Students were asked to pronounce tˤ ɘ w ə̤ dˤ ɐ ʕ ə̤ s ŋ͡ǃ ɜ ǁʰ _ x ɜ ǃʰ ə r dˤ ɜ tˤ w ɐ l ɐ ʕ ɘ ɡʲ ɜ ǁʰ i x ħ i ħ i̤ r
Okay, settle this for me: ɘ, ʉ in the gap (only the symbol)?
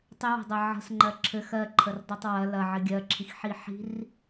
ɘ